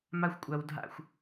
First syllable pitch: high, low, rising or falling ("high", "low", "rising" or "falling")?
high